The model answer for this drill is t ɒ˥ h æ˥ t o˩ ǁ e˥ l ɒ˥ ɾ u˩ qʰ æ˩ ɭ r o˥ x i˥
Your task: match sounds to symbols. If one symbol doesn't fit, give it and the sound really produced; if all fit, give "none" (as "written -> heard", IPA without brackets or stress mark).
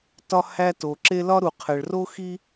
none